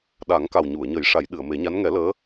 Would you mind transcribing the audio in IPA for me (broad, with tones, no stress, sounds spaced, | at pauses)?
ɗ a˨˩˦ ŋ k a˨˩ w ɲ u˨˩˨ ə̯ ɲ ə˨˩˦ j ʂ a˨˩˦ j ɗ ɨ˨˩˨ ə̯ m e˨˩˦ ɲ a˧˥ n ŋ ɛ˨˩˦ l əː˧˥